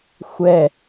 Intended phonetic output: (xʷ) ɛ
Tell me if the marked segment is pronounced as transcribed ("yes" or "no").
yes